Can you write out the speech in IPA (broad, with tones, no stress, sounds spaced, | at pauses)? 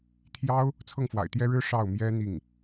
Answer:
t̪ʰ j ɑ˥ ʊ̯ | t͡sʰ ɤ˥˩ ŋ f w a̰˨˩ ɪ̯ t̪ j ɛ˥ ɻ ɻ̩˥ ʂ ɑ˥˩ ʊ̯ m j ɛ˥ n̪ i˥˩ ŋ